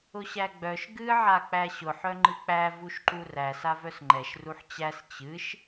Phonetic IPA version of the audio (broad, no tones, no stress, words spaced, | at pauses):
ʊɕæɡ͡bœʃ ɡɨ ʕak͡pæɕʊħ œŋ͡ǃɨk͡pæ vuʃǃuræs avœsŋ͡ǃɛʃ ruħt͡ɕæs t͡ɕɨʃ